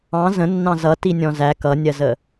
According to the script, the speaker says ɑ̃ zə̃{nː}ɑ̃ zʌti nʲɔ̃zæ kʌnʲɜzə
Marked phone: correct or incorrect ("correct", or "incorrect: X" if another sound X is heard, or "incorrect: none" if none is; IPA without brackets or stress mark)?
correct